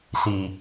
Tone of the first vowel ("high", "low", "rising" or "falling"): low